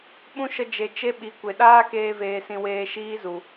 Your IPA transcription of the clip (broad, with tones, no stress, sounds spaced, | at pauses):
ɓ ũ˦ ʃ ə˧ d͡ʒ e˨ t͡ʃ e˦ ɓ i˨ kʷ e˨ ɗ aː˦ k eː˧ v eː˨ s ĩ˨ w eː˧ ʃ iː˦ z u˨